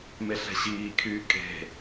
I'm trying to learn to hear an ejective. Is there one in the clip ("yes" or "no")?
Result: yes